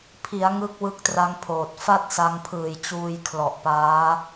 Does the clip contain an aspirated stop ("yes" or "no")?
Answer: yes